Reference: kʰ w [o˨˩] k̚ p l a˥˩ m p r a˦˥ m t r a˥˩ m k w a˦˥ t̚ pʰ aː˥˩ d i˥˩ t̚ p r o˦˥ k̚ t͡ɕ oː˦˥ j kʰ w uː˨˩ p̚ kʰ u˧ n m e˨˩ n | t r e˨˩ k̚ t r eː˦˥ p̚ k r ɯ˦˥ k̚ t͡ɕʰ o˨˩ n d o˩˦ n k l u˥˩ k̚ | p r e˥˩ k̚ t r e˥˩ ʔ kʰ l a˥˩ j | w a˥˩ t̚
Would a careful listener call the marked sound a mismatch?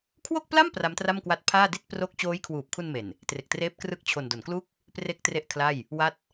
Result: yes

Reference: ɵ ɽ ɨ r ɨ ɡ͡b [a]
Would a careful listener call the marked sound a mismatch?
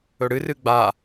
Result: no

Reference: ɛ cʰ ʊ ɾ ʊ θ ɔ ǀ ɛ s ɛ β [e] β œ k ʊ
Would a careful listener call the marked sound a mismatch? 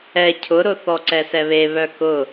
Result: no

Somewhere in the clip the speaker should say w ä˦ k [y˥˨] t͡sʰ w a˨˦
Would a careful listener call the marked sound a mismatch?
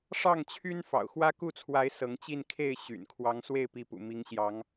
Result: yes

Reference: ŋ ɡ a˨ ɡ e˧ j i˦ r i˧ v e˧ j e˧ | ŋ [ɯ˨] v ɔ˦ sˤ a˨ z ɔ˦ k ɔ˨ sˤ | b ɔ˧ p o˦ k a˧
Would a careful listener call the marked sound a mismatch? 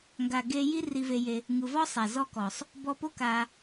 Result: no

